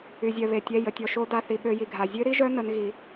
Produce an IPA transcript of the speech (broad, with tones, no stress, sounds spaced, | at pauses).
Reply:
y˧ zʲ œ˧ β e˧ tʲ ɛ˧˥˧ j ə˧ tʲ ɔ˧ ʃ o˦˥ d a˧˥˧ θ i˧ ɓ ø˦˥ j i˧ ɡʱ a˧ zʲ ø˦˥ ɾ i˦˥ ʒ œ˦˥ n ə˦˥ n ɣ i˧